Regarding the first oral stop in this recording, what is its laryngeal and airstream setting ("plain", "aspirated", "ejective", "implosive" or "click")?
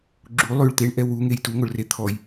click